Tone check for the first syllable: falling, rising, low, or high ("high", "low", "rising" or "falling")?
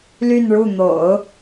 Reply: falling